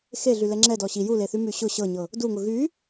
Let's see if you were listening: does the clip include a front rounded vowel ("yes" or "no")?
yes